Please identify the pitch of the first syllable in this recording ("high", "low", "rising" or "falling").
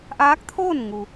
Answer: rising